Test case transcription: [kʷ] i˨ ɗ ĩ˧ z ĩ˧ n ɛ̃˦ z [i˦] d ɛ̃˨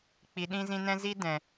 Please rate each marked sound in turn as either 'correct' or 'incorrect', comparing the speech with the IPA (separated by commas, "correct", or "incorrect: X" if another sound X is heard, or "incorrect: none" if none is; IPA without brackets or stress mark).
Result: incorrect: k͡p, correct